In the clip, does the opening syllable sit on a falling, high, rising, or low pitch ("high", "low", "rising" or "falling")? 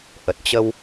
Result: low